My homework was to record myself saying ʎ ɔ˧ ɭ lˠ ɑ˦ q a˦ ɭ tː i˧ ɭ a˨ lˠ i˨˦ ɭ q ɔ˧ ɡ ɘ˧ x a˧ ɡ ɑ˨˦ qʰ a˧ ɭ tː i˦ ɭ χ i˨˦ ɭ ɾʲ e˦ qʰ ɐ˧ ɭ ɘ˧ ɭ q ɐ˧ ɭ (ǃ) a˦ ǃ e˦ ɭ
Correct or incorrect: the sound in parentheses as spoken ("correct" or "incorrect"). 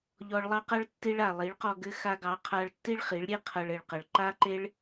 correct